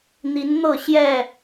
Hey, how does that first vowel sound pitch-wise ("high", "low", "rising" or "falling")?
rising